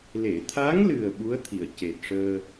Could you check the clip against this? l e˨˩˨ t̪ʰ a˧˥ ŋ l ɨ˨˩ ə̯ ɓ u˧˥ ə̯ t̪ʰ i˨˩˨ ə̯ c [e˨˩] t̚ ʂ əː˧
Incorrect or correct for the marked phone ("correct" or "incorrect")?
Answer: correct